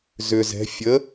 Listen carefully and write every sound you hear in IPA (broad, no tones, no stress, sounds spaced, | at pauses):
z ʏ z ɛ̤ fʲ ə